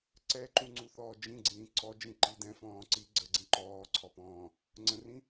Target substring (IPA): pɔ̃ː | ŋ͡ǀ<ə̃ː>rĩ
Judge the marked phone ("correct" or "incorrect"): incorrect